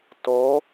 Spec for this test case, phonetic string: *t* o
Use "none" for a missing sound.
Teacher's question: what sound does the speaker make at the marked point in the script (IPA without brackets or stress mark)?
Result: t